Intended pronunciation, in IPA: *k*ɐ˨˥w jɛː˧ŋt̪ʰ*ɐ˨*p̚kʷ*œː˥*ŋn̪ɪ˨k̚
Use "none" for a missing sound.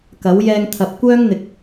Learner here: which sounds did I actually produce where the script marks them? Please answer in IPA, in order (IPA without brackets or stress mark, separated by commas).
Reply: k, ɐ˨, œː˥